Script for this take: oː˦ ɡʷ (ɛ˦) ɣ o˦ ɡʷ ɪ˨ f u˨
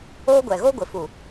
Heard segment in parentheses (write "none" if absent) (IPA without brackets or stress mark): ɛ˨